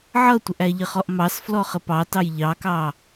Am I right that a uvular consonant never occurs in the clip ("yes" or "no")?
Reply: no